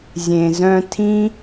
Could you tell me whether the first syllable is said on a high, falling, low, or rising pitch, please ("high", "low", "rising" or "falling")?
low